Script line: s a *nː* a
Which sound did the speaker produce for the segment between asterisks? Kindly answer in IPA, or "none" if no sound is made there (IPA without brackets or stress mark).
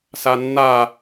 nː